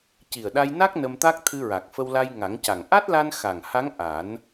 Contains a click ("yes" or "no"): no